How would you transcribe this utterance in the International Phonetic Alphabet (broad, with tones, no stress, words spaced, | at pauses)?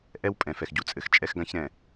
ʔɛ˦wpʼɛ̃˨ fɛ˨xɟu˨t͡sʼɘ˨x t͡ʃʼɛ˦xɡã˦çɾɛ̃˨